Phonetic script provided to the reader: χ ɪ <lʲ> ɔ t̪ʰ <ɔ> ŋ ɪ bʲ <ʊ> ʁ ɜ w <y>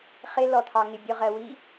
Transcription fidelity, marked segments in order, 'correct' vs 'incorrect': incorrect: l, incorrect: ɑ, correct, incorrect: i

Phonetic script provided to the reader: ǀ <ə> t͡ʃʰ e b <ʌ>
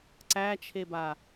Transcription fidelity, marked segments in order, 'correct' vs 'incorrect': incorrect: æ, incorrect: a

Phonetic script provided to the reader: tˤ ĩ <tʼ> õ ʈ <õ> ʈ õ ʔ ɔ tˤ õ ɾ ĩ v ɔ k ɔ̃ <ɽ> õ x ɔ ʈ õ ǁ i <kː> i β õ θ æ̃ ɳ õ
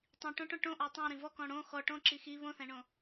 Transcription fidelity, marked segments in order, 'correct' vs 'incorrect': incorrect: ʈ, incorrect: ɔ̃, correct, incorrect: x

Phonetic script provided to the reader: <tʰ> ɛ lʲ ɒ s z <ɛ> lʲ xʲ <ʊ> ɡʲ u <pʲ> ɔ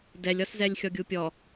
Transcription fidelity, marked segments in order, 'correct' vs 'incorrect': incorrect: d, correct, incorrect: ɔ, correct

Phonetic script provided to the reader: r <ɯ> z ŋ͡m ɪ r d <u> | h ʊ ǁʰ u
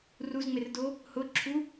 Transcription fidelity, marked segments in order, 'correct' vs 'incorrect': incorrect: u, incorrect: o

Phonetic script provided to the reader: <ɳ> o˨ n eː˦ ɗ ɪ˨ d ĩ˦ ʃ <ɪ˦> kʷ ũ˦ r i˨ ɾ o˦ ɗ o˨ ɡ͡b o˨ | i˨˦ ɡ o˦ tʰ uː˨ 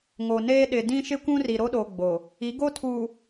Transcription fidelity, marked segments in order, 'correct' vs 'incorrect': incorrect: ŋ, correct

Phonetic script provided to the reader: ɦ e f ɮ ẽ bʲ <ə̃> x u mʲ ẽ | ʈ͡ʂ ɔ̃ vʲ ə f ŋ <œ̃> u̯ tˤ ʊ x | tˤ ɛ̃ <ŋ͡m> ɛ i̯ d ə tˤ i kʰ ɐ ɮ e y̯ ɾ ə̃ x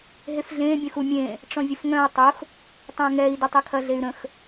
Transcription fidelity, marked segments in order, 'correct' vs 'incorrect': correct, correct, incorrect: ŋ

